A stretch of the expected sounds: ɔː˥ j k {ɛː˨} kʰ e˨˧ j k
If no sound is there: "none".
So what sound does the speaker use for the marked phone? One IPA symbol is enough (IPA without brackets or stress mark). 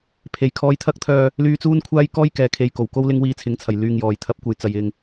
ɛː˨